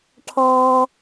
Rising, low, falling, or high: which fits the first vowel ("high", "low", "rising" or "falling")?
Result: high